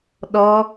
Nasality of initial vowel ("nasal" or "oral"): oral